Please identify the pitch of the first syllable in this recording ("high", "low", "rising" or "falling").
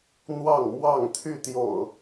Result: falling